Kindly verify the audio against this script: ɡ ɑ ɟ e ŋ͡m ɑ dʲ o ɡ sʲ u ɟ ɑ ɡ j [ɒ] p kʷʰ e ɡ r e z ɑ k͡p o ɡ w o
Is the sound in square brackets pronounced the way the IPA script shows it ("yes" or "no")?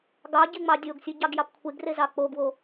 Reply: no